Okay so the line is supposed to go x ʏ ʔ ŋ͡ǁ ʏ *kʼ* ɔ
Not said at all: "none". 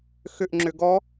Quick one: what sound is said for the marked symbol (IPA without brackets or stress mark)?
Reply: ɡ